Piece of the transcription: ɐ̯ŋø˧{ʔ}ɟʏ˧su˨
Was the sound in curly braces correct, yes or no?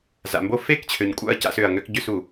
no